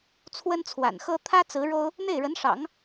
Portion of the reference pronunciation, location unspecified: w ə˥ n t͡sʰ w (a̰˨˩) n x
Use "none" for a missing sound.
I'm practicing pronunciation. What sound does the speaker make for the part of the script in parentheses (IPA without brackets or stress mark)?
a̰˨˩